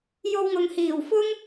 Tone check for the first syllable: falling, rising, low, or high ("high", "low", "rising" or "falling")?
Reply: high